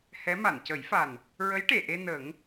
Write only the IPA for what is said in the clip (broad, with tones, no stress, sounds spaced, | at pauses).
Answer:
h ɛ˧˥ m a˨˩˨ n c ə˨˩˦ j f a˨˩ n | ɹ ə˧˥ j ʈ e˨˩˨ ʔ e˧ n ə˨˩˦ ŋ